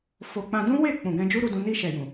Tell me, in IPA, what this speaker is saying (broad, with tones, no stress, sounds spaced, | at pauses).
f o˧ k͡p ã˧ d ũ˦ w e˦˨ k͡p ũ˨ ɡ ɛ̃˧ d͡ʒ u˦ ɾ u˧ d ũ˧ n i˧ ʃ ɛ˨ j ũ˨